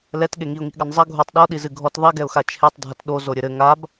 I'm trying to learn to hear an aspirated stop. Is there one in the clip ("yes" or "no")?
yes